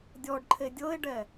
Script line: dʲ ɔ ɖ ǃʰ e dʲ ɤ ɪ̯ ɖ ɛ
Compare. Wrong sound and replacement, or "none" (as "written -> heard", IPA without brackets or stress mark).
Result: none